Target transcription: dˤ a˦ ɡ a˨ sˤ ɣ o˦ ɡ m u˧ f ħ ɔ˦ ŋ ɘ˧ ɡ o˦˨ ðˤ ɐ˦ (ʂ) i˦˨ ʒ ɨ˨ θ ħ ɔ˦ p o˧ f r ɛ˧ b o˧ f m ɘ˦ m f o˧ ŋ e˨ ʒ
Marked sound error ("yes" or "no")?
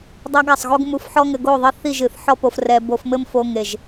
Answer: yes